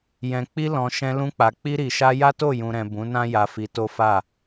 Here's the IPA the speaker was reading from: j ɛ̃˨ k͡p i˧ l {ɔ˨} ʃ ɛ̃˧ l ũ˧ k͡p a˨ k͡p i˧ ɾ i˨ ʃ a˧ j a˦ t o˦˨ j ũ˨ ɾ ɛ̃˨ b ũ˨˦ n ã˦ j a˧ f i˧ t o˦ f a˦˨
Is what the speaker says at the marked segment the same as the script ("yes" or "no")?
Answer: no